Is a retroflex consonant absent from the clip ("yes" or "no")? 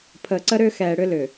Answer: no